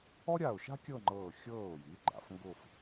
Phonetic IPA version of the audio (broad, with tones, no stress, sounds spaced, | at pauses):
ɔ˥ ɾʲ a˧˩ ʊ̯ ʃ a̤˥ kʲ ɤ˥˧ ŋ͡ǃ ɤː˧˩ xʲ ɤː˧˩ ʊ̯ j i˩˧ ɡ͡ǃ a̰˩˧ f ŋ ɡ ʊː˥˧ f